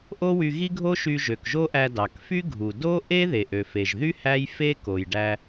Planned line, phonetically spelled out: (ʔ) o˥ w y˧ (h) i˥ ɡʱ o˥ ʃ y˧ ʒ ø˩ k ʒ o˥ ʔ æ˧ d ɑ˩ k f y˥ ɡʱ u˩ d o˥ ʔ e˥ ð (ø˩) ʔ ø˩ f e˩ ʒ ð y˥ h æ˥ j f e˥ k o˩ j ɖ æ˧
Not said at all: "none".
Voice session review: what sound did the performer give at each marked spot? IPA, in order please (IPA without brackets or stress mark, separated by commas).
ʔ, ɣ, e˩